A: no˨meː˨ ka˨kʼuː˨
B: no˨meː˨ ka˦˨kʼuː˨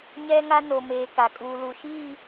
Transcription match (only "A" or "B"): A